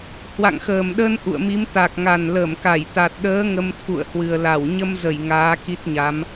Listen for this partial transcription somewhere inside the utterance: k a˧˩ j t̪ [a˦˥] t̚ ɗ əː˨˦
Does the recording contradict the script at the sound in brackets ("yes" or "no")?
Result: yes